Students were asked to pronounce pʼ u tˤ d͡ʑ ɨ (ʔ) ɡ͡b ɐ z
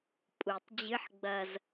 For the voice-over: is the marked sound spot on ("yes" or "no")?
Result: no